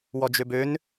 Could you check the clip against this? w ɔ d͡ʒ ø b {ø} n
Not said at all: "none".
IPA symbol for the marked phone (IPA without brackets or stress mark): ø